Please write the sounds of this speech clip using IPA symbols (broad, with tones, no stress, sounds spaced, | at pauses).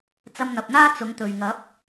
t͡s ɐ˧ m n̪ ɐ˨ p̚ n̪ aː˥ t͡s ʊ˨˥ ŋ t̪ ɵ˨ ɥ ŋ ɐ˨˥ p̚